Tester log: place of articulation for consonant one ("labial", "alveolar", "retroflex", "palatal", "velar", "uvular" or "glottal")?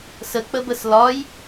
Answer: alveolar